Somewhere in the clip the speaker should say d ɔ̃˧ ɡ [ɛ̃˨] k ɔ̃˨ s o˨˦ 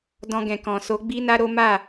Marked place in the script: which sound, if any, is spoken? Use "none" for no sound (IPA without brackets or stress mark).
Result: ɛ̃˨